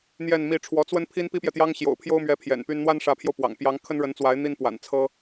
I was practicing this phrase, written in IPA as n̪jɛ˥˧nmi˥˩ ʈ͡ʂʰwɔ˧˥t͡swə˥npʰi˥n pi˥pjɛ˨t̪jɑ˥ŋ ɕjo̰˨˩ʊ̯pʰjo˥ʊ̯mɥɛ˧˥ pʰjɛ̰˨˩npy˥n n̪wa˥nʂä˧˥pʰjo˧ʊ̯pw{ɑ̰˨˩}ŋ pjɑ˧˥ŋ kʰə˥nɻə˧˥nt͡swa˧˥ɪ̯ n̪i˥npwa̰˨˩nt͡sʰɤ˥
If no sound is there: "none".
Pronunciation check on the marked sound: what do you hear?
ɑ̰˨˩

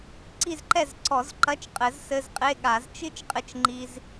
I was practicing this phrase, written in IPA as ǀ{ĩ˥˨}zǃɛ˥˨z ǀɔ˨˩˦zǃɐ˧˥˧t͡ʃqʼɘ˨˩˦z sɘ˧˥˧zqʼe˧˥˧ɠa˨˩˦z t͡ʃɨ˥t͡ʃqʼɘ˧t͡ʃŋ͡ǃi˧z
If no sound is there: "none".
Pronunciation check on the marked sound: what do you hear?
i˥˨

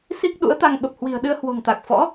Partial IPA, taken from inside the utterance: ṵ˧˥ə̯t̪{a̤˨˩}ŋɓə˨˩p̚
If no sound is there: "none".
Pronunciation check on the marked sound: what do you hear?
a˧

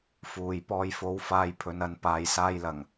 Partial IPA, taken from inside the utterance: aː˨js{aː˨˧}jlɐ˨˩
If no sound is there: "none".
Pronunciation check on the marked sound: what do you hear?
aː˧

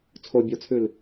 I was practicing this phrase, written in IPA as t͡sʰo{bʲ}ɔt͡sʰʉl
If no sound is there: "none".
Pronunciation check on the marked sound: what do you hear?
bʲ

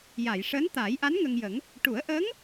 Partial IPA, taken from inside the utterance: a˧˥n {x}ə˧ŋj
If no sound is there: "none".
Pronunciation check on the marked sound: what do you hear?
ŋ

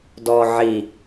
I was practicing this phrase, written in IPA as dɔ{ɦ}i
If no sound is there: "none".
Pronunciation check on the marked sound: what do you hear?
ʕ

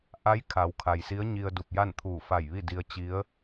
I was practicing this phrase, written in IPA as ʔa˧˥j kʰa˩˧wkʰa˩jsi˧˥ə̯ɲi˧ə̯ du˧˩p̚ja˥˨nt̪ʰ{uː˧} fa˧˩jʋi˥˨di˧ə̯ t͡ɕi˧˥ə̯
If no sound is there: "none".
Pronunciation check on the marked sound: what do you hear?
uː˧˩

